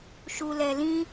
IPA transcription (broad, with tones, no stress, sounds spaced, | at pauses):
ʃ u˧ l ɛ˧ l ĩ˦